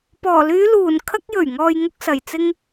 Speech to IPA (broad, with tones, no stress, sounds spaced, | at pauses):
p ɔː˨˩ l yː˨˧ l uː˨˩ n kʰ ɐ˧ k̚ j ɵ˨˩ ɥ ŋ ɔː˨ j ŋ ʊ˧ k̚ s ɐ˨˩ j t͡s ɪ˧ ŋ